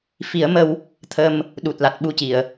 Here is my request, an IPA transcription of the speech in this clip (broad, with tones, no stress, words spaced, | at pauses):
fi˨˩˦ə̯ mə˧w | t̪ʰə˧m | ɗu˨˩t̚la˨˩t̚ɓu˧ci˨˩˨ə̯